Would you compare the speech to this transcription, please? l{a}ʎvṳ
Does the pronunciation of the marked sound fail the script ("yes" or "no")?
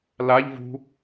no